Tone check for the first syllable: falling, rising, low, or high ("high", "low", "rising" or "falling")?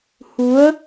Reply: rising